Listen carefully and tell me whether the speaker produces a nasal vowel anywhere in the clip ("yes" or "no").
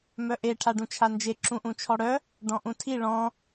yes